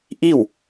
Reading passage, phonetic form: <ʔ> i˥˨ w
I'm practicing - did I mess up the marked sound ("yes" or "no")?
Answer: no